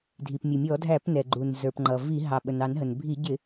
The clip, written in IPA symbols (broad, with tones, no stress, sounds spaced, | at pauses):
dʱ i˩ p mʲ ʊ˩ mʲ ɔ˧˩˧ dʱ æ˧˩˧ p n ɛ˩ ɡ͡ǃ u˩ n z ə˞˩ p ŋ͡ǃ ʌ˩ v i˧˩˧ ɦ ɑ˩ ɓ ə˩ n ɑ˧˩˧ n ɦ ə˩ n bʱ i˧˩˧ ɟ ɪ˧˩˧